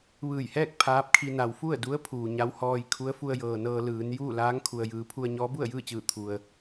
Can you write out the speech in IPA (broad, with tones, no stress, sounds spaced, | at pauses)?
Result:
ʋ ɯː˧˩ j h ɛː˥˨ k̚ pʰ aː˧˥ p̚ kʰ i˧ n a˩ w f u˥˨ ə̯ d u˧˥ ə̯ pʰ uː˩ ɲ a˧˥ w h ɔː˧ j kʰ u˧˥ ə̯ f u˧ ə̯ j ɤː˩ n ɤː˧ l ɯː˩˧ n j uː˥˨ l aː˧˥ ŋ kʰ u˩ ə̯ j ɯː˩˧ pʰ u˧ ə̯ ɲ ɔː˧˥ b u˥˨ ə̯ j ɯː˥˨ t͡ɕ ɯː˧˩ t̪ʰ u˩ ə̯